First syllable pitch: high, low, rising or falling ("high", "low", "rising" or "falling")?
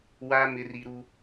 high